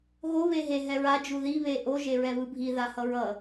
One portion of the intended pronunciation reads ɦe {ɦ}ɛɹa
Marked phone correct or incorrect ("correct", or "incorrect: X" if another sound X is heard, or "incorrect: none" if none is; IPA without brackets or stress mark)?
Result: correct